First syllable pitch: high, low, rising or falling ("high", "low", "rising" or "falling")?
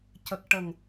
low